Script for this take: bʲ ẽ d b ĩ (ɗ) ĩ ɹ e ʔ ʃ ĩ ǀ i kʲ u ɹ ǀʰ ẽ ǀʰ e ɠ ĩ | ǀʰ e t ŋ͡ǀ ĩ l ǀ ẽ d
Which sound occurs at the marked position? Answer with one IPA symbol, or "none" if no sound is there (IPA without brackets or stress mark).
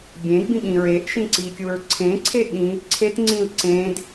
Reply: ɠ